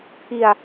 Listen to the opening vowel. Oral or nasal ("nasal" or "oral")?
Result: oral